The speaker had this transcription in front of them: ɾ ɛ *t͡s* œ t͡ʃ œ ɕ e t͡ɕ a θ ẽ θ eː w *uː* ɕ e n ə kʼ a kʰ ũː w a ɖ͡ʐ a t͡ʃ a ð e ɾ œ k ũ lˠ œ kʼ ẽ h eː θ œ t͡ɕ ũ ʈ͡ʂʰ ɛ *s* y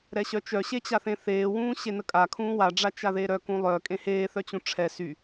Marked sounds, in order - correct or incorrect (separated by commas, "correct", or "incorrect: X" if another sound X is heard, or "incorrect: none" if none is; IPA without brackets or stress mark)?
incorrect: ɕ, incorrect: ũː, correct